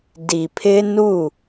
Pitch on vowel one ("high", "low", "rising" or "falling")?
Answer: low